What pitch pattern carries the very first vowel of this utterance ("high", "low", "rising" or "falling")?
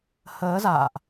rising